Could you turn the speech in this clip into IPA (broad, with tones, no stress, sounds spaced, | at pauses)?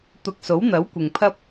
t̪ ʊ˧ k̚ s o˨˥ w n̪ ɐ˨˥ w kʷ ɪ˨ ŋ pʰ ɐ˥ p̚